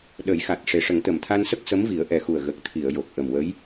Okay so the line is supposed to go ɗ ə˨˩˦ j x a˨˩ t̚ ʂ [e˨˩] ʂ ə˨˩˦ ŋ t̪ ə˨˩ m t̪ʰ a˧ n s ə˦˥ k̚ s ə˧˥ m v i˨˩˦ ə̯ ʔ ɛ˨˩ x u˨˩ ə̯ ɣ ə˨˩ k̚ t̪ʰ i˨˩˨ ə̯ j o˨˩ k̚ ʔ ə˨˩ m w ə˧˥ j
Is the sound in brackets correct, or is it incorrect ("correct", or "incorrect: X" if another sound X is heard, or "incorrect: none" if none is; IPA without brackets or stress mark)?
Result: correct